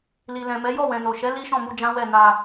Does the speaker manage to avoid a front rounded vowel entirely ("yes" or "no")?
yes